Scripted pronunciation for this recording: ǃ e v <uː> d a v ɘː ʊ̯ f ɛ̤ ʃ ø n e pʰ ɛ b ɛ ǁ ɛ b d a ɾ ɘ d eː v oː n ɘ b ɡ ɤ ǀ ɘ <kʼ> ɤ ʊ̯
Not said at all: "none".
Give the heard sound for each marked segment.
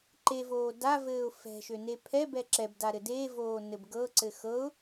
oː, x

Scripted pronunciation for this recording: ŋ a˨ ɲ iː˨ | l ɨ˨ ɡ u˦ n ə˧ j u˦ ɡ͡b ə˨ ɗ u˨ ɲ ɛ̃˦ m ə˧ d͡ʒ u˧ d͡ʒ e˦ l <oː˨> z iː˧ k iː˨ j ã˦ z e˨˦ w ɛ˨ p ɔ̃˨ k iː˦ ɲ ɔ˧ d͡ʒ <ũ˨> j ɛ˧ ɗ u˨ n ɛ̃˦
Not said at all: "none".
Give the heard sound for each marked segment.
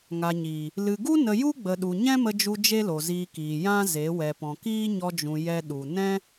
o˨, ũ˨

